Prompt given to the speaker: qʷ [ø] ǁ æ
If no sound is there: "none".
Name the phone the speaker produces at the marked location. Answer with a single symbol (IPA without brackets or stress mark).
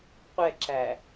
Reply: ɛ